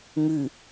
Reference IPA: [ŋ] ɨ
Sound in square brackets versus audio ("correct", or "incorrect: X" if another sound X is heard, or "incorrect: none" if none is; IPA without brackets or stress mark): correct